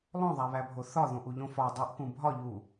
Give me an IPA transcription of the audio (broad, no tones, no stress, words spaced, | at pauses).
lˠõðˤæβæbʱo θɒðõʔuʎõ fɒ dˤuʔkũ bʱɒʎu